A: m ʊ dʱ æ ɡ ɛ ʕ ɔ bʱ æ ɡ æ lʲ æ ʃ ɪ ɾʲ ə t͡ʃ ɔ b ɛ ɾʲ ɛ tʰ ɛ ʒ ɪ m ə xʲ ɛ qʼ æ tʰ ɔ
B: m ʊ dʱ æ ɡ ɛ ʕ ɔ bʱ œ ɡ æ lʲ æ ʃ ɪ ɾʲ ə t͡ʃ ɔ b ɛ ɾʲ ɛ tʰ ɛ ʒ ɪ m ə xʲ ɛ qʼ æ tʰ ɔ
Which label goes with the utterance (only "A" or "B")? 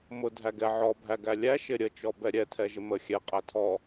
A